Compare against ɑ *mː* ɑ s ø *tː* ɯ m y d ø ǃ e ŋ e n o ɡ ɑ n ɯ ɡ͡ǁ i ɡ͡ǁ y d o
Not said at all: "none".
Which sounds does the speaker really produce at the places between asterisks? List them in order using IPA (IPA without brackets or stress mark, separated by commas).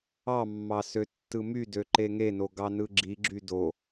mː, tː